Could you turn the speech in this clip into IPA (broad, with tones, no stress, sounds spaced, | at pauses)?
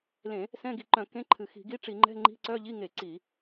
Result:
l ẽ˧˩˧ | s ɛ̃˧˥˧ ɡ i˧˩˧ ǃ œ̃˧˩˧ k ẽ˧˥˧ ǃʰ ɨ˧˩˧ x i̤˧˩˧ ɡ i˧˥˧ ʈ͡ʂ i˧˩˧ ŋ͡ǃ ɛ̤˧˥˧ ŋ͡ǃ i̤˧˥˧ ǀ œ˧˥˧ ʎ i˧˥˧ ŋ e˧˩˧ ǀ i˧˩˧